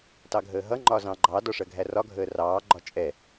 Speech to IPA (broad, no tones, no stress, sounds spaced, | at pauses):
t ɑ ɡʱ əː ɦ ʌ ŋ͡ǃ ɒ z ɑ̃ ɡ͡ǃ ɑ d ɒ ʂ ɜ ɡʱ æ r ɒ ɡʱ əː r ɑː ɡ͡ǃ ɒ t͡ʃʼ ɛ